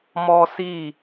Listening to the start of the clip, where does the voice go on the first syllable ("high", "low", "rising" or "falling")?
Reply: high